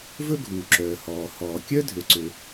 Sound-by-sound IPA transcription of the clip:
v ɵ˥ ɡʱ uː˩ ǁ œː˩ h ɔː˩ h ɔː˩ kʲ œ˥ dʱ ø˩ ǀ ø˩

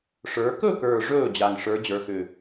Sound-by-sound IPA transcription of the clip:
ʂ ə˞˩˧ k ɵ˥˩ k ə˞˨˩ ʐ ɵː˥˩ d͡ʑ a˨˩ ŋ ʂ ə˞˩˧ d͡ʑ ə˞˩˧ x ʏ˨˩

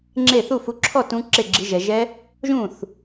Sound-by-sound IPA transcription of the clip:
ŋ͡ǁ e˥˩ θ u˥˩ f u˨˦ ǁʰ ɔ˥˩ t ũ˨˦ ǁ e˥˩ ɡ͡ǁ i˨˦ ʒ ɛ˨ ʒ ɛ˦˥ | ʒ ũ˥˩ θ

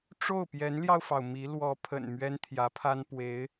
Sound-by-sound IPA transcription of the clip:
ʈ͡ʂ o˥˩ ʊ̯ p j ɛ˧˥ n l j ɑ˧ ʊ̯ f ɑ˩ ʊ̯ m i˧˥ l w ɔ˧˥ pʰ ə̰˨˩ n m ɥ ɛ˥ n t̪ʰ j ä˧˥ pʰ a˥ n p w e˧˥ ɪ̯

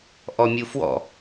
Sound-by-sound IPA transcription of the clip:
ʔ ɔ mʲ u f w ɔ̰

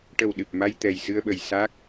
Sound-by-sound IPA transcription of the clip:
ʈ ə˨˩ w ɗ ɨ˨˩ p̚ m a˧ j t̪ ɛ˨˩ j s ɨ˧ ə̯ ɓ ə˨˩ j s a˦˥ k̚

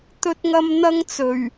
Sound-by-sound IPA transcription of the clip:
t̪ ɵ˥ t̚ ŋ ɐ˥ m n̪ ɐ˥ ŋ t͡s ɵ˨˩ ɥ

